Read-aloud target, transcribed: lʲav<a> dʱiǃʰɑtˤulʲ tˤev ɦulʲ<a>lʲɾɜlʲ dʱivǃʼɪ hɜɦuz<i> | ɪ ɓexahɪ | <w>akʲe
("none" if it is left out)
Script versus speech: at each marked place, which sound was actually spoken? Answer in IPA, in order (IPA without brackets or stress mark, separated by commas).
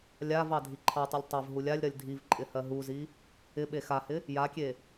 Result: ɑ, a, i, j